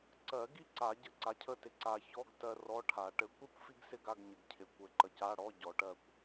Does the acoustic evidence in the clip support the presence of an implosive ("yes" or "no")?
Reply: no